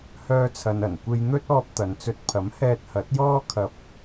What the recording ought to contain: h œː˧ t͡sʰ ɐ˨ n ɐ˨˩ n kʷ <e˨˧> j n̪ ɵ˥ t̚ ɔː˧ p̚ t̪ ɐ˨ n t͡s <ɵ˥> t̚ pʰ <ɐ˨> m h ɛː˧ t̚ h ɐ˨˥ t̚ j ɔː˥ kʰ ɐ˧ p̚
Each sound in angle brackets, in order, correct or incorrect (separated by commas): incorrect, incorrect, incorrect